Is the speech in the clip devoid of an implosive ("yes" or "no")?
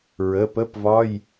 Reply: yes